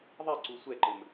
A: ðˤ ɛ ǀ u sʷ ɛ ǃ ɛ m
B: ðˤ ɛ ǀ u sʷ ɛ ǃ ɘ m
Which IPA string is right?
B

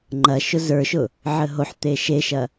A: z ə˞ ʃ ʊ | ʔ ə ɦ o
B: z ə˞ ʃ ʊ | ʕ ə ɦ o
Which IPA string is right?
B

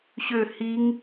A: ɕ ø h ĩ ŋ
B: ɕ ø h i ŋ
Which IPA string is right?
B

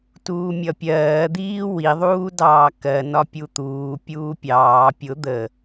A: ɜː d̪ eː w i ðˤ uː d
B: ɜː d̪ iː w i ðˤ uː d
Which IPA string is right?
B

